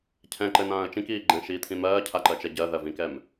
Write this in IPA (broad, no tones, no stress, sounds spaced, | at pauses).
cʰ ɛ̃ ǃ ɘ n ãː ə̯ t͡ʃ ĩ k iː ɡ͡ǃ ɛ̃ ʃ iː t̪ʰ ĩ m ɜː cʰ a ǃ ɜ t͡ʃ ɛ ɟ ɜ ð ɜ v ĩ k ɛ m